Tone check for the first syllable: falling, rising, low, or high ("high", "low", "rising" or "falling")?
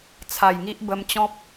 low